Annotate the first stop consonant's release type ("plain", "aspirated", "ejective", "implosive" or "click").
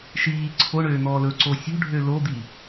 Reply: click